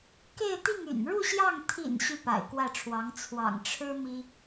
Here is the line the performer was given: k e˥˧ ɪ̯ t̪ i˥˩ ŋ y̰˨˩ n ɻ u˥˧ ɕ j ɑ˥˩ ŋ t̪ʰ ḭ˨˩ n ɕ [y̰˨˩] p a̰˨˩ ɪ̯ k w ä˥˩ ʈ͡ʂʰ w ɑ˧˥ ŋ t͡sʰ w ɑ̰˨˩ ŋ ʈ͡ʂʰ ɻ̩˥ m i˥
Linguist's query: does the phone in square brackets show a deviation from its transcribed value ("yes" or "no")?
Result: yes